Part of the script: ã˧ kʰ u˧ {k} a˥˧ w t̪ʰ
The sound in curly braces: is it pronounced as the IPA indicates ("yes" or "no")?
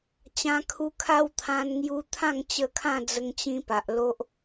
no